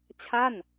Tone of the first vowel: falling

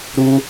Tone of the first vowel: high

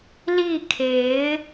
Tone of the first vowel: falling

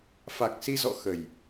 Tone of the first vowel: low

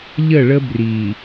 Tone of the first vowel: falling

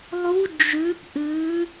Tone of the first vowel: rising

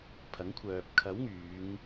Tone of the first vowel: rising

